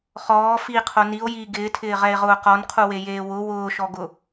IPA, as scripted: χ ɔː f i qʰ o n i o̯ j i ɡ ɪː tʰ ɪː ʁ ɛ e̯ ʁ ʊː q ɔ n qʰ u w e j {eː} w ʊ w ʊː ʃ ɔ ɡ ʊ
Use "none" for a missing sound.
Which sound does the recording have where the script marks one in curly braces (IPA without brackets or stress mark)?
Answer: eː